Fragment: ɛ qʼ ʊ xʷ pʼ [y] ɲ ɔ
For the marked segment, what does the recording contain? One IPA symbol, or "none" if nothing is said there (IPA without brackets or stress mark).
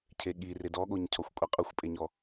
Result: e